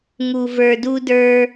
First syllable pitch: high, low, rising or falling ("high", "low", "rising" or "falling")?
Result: low